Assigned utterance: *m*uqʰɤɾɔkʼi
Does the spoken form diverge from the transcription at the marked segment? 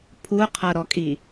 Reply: yes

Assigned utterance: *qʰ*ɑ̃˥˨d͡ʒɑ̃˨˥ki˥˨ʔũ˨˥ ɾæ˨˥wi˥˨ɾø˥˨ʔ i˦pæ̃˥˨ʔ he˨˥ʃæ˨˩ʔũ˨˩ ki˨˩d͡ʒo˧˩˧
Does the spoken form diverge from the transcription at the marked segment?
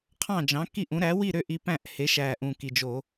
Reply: no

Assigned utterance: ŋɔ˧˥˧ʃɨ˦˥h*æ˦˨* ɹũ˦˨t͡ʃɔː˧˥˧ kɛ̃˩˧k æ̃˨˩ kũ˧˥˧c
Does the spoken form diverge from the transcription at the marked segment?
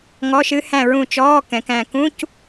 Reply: yes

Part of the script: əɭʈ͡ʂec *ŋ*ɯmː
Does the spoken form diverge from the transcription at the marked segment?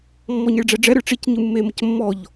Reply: yes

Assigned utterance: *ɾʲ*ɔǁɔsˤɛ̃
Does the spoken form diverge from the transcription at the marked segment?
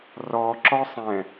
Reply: yes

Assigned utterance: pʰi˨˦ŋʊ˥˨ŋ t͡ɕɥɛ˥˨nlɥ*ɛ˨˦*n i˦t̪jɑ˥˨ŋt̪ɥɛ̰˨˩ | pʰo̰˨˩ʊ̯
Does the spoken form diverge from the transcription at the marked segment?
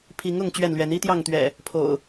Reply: no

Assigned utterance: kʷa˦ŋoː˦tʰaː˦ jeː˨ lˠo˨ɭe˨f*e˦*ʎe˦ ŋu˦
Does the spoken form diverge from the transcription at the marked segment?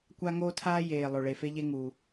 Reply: no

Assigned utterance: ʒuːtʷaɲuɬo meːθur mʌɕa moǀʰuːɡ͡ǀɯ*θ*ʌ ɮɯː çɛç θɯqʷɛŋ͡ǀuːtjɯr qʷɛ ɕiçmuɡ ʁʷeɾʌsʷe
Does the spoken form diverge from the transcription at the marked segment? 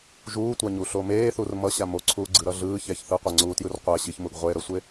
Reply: yes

